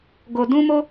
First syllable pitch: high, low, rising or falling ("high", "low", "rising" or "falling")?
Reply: low